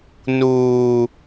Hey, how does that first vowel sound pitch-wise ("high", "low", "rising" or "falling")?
high